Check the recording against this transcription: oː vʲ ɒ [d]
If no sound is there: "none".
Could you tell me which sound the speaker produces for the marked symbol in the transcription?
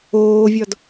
d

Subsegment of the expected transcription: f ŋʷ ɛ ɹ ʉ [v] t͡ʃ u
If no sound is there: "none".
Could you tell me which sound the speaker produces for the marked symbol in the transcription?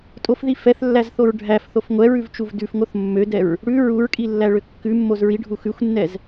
v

